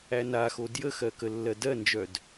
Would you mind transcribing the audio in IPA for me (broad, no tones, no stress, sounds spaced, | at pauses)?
æ n a x o d j ə x ɜ k ə lː ɜ d ɜ n d͡ʒ œ d